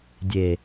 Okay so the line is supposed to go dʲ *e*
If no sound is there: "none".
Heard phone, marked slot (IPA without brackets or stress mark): e